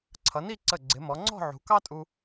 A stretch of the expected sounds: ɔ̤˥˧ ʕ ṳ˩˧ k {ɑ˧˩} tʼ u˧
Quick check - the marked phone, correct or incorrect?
incorrect